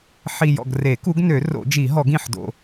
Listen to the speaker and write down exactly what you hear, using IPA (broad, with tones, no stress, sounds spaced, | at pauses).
ħ i˨˩ j ɔ̰˨˩ ɡ r e˨˩˦ k u˨˦ ɡ n ø˨˩˦ r o̰˨˩˦ d͡ʒ i˨˩˦ ɦ ɔ˨˩˦ ɡ ĩ˨˩ ħ d o̰˨˩